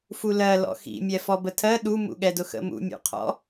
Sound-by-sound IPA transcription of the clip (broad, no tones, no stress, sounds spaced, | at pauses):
f u l ɜ l ɔ̰ x ḭ mʲ ɛ f ɔ b ə tʰ ɜ ɗ u m ṵ ɠ ɛ d ʊ x ə̰ m ṵ mʲ ṵ qʰ ɔ̰